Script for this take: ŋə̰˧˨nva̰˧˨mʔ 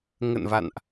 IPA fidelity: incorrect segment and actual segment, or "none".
m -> n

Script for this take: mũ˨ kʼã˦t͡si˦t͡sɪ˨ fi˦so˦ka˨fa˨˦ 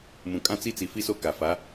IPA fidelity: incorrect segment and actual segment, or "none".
ɪ˨ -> i˨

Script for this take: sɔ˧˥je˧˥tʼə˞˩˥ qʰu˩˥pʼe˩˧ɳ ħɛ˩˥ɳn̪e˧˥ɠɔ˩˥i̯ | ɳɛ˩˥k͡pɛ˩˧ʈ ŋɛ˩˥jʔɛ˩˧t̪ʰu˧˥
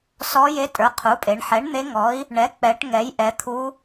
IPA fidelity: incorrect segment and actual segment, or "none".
ɠ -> ŋ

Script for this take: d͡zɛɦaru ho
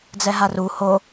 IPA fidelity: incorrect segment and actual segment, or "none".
none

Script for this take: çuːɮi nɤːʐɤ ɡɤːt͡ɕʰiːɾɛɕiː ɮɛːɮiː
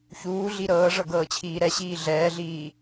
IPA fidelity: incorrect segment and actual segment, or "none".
n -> ɾ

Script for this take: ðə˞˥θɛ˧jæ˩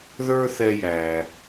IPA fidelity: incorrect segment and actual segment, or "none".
none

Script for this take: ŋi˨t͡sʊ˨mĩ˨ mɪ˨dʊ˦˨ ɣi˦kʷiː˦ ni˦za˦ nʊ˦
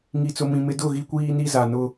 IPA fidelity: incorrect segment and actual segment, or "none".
a˦ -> a˨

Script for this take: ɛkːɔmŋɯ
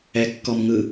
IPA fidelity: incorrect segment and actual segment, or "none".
none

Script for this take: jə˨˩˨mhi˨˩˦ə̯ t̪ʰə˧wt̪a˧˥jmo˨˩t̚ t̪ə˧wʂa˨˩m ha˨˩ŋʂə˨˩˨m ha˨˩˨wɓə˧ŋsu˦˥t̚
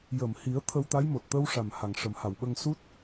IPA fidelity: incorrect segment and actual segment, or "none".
none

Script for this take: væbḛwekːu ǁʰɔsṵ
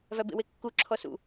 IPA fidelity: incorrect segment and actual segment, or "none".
none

